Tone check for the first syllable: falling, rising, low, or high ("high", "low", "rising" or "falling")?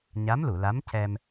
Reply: rising